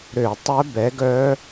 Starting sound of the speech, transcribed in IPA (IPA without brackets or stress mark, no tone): ɾ